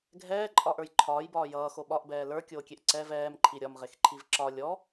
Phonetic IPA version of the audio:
ɡʱɛːǃʼɒʔə˞j ǃʰɒːjbɒː jʌːxo ɓɒʔbɛː lə˞kʲoːkʲeʔ ǀɛv ɛːmǃʰi ɾʲɒmʁexǃʰiv ǁɒ lʲɔ

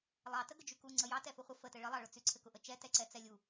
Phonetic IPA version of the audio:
lˠɑtə ɡəd͡ʒyku ŋ͡ǀəjɑ tɛfʊχʷə fətɘ ɭəlˠɑɭʊt͡sy ǀʰɘkʊʔət͡ʃɛ tɛǀɛt͡sɛlʲu

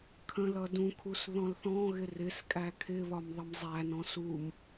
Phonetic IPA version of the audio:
kʰə̃lʌ dũkʰus ðɔ̃lθɔ̃ɣɪ rɪskʼæ kʰɪβɒm ðˤʌmzˤænɔ̃ sum

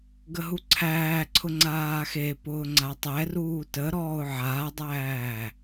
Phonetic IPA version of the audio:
ɡəɦuǀʰæːǀʰʊ ŋ͡ǀaːxepʊː ŋ͡ǀatˤɛruː təɾɔːʊ̯ ʕaːdˤæː

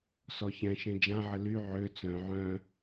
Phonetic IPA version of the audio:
sɔçɛ̃ʃẽ d͡ʒã ʕəly ʕø t͡sœ̃ ʕœ̃

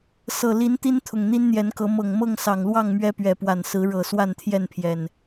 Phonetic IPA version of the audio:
sɤ˨˩li˨˦n t̪i˦nt̪ʰʊ˨˩ŋ n̪i˦nn̪jɛ˨˦nkɤ˨˦ mɤ˨˩ŋmɤ˥˨ŋ sɑ˨˩ŋlwɑ˥˨ŋ mɥɛ˦pɥɛ˨˦pwa˨˩nsɹ̩˨˦ ɻɤ˨˩ swa˥˨nt̪ʰjɛ˥˨npʰjɛ˨˩n

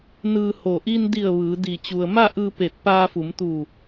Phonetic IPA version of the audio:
nɯː˧ho˧˩ ʔi˧ndi˧˩ə̯ ʋɯː˩˧ di˧˩ t͡ɕu˩ə̯ma˥˨ʔɯː˧ pe˧˩t̚paː˧ fu˩˧mt̪uː˧˩

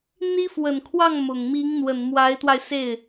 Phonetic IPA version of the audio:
n̪i˥fwə˨˩nkʰwɑ˥˩ŋ mʊ˨˩ŋ mi˧˥ŋn̪wə˨˩n mwa˧˥ɪ̯t̪wa˧ɪ̯se˥˩ɪ̯

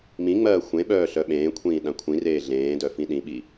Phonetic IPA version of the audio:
mĩŋ͡mɜː xʷẽɓœː ɬœɓẽːkʷʰĩː ɗãkʷʰĩreː ɮẽːdœ fĩɗĩɓi

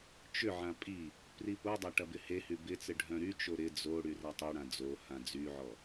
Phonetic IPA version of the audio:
t͡ʃʏʕã pʼi | pripodˤɐ ʈɐbɪhehy bɪt͡sɪ ɖʱœ̃ɾyt͡ʃo ɾɪ d͡zo ɽyrɐtˤeɽã d͡zo hãd͡zyʕɔ

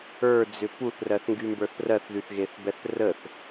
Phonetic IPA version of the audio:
ə˞d͡zʏ puθrɜθŋɡymbə˞θ rɜθðyθɣeθbɛθ rəθ

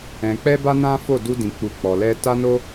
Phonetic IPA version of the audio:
ɛ̃˨k͡pɛ˧ ba˦nã˦fo˦˨ du˧dĩ˨ k͡pu˨ k͡pɔ˨ lɛ˧ ta˦no˦

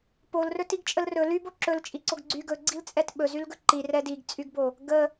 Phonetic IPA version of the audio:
polrɵ tiɡt͡ʃʼəlrɵ ly boǁɵl t͡ʃʼiǀoɡɡ͡ǀy ɡɵɡ͡ǀil t͡sʼɛtɓɵzylɡɵ ǃi rɛdiɡt͡sʼyɡbo | ɡə

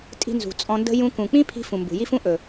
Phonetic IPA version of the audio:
tʼi̤˧nzṳ˨ t͡sʼɔ̃˧ndə̤˦ jũ˧kũ˨k͡pĩ˦ pʰi̤˦fũ˨mbṳ˨ ji˦fũ˦ ʔɵ˨

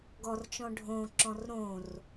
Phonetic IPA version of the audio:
ɡɔrt͡ʃɔ̃ ɖʱõǁɔ̃r ɾõr

